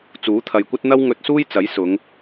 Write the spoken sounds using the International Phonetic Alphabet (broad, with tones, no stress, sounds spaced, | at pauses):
t͡s uː˨˥ t̪ʰ ɐ˨ j kʷ ɐ˥ t̚ n̪ ɐ˥ w ŋ ɵ˧ t̚ s uː˥ j t͡s ɐ˨˥ j s ʊ˨˧ ŋ